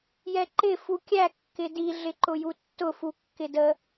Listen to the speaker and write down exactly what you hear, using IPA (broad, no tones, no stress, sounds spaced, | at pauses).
j ɛ ǃ ɪ f u kʲ æ kː ɪ d i ɮ ɪ ǃ ʊ j u tː ʊ f u kː ɪ d ə